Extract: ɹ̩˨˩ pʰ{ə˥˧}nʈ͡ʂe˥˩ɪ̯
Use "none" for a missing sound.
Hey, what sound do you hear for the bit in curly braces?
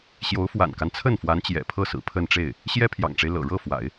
ə˥˧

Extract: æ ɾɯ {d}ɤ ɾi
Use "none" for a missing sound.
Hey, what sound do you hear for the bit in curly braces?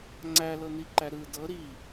d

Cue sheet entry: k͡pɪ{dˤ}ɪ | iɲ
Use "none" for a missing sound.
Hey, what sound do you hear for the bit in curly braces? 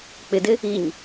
d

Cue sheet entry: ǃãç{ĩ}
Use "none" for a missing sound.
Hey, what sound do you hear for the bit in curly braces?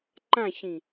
ĩ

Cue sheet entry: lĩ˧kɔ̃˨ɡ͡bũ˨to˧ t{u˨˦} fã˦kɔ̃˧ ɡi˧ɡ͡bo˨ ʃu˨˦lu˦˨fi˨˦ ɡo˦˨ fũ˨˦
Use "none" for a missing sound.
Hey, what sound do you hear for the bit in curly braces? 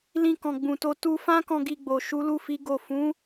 u˧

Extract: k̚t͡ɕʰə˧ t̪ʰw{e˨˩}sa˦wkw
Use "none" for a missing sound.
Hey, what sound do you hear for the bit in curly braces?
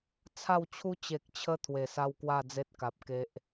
e˨˩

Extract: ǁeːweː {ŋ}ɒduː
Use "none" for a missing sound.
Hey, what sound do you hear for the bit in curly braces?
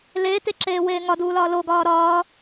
ŋ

